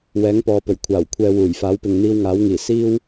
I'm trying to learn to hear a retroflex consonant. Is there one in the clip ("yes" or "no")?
no